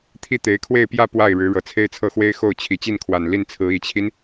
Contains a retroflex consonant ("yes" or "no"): yes